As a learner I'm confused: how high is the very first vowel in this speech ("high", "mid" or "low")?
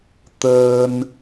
mid